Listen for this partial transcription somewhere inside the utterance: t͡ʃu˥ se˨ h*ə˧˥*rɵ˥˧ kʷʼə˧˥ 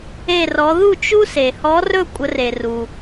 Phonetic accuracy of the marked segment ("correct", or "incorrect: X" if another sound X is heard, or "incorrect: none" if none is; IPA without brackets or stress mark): incorrect: ɔ˧˥